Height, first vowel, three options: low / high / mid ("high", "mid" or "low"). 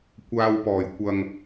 low